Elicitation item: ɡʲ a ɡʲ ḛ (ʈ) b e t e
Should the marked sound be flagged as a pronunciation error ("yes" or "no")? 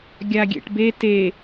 no